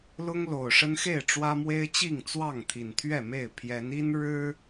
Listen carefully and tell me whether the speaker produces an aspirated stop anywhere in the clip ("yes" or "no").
yes